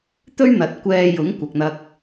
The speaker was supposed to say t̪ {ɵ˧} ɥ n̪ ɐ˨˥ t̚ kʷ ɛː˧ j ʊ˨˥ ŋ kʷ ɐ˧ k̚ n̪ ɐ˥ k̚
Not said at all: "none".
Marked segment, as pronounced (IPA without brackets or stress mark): ɵ˥